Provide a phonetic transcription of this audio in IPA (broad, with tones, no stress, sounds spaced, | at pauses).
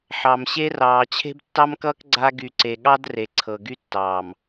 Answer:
ħ ɑ˨ m ɕ e˦ r ɑː˨ t͡ɕʰ e̤˦ b tː ɑ˦ m k ʌː˦ k ɡ͡ǀ a˦ ɡ y˨ ǀ e˨ ɠ ɑ˦ d r e˨ ǀʰ ɤ˨ ɡ y˦ tː ɑː˨ m